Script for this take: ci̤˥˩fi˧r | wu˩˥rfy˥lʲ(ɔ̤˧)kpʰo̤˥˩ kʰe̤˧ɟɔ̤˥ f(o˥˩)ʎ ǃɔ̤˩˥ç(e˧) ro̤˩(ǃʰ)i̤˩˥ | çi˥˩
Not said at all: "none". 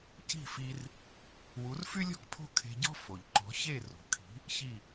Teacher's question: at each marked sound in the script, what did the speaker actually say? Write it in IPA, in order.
ɔ̤˥, o˩, e˥˩, kʰ

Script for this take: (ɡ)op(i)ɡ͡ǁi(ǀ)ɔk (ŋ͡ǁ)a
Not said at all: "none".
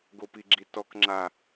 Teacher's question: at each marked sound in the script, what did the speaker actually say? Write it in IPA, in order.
ɡ, i, t, ŋ͡ǁ

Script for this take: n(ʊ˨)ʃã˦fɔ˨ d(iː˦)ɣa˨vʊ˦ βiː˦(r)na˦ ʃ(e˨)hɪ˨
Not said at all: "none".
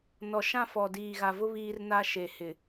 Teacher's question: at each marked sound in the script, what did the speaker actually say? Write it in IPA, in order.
ɔ˨, iː˨, r, e˨

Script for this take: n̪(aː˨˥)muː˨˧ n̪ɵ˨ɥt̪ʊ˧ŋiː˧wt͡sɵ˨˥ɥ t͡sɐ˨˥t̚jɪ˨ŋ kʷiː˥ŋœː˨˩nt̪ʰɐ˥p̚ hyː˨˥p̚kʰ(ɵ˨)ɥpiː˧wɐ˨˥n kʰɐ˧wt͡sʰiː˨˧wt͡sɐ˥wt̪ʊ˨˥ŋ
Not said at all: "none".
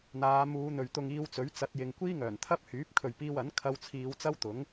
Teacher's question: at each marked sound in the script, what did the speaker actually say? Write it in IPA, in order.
aː˨˧, ɵ˨

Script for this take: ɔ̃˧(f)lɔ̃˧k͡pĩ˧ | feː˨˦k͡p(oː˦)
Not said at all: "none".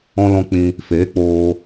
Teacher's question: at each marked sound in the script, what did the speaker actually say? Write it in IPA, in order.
none, oː˧

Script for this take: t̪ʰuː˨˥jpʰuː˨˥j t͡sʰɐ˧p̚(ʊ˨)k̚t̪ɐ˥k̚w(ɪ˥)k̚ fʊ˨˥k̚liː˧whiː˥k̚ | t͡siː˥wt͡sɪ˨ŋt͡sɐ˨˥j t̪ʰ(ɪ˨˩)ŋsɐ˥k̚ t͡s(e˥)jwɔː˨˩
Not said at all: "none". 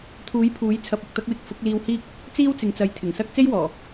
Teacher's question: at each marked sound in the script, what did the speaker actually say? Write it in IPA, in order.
ʊ˨, ɪ˥, ɪ˨˩, e˥

